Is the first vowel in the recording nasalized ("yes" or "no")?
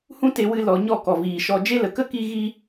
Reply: yes